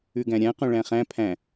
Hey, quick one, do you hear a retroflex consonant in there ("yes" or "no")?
yes